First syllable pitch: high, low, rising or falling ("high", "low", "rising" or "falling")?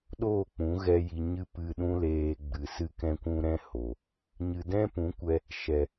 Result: falling